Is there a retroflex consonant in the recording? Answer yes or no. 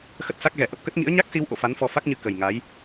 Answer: no